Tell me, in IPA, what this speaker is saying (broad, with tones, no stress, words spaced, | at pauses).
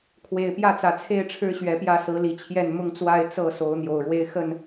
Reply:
kʰwe˨˩ɪ̯pjä˥˨t͡sä˨˩t͡sʰe˥˨ɪ̯ ʈ͡ʂʰɻ̩˦ɕɥɛ˨˦pjä˥˨ sɹ̩˨˦li˨˩t͡ɕʰjɛ˥˨n mʊ˥˨ŋt͡swa˥˨ɪ̯ t͡sɤ˥˨so˨˦ʊ̯ n̪jo˨˩ʊ̯ɻwe˦ɪ̯xə˥˨n